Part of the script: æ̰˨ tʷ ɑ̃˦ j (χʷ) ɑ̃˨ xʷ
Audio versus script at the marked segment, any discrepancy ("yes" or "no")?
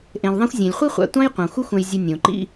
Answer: yes